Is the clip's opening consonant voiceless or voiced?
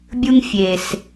voiced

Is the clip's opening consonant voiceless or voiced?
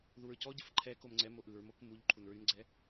voiced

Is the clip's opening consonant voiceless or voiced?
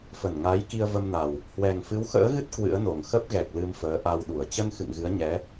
voiceless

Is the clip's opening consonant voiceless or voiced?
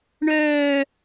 voiced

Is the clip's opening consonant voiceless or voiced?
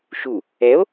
voiceless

